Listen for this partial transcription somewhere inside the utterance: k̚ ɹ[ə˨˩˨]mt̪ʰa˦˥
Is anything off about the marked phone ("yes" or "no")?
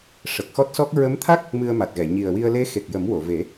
yes